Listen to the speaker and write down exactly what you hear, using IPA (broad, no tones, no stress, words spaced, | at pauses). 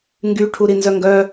ŋɡyʈʰuɾi nzœŋɡœ